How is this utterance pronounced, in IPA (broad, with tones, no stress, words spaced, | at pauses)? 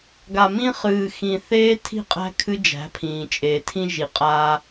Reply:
ɡa˨mĩ˦ χɨː˨xĩ˨ θeː˦tʰi̤˦˨qʼæ̤˦ kʰɨ˦d͡ʒæ̤˨˦ pʰĩː˨t͡ʃʼeː˨tʰĩ˦ ʒi˨qʼaː˦